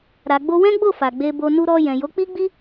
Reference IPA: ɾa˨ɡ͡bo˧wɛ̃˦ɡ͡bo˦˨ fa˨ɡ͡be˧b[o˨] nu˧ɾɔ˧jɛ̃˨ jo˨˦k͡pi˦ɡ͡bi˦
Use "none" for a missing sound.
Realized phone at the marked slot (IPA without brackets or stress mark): o˧